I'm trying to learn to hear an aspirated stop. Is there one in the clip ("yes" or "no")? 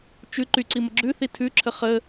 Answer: yes